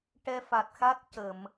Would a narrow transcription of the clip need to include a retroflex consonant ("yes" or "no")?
yes